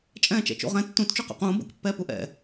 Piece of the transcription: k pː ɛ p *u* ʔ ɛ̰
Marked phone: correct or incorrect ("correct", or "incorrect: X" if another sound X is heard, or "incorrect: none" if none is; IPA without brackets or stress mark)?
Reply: correct